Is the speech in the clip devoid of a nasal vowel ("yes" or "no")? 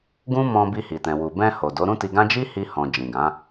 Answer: no